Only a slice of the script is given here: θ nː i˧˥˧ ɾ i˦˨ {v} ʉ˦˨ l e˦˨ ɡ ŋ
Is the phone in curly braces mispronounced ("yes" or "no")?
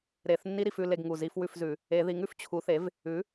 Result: yes